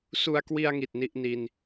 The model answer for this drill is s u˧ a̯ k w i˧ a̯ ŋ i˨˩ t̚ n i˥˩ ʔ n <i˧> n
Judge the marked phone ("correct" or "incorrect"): correct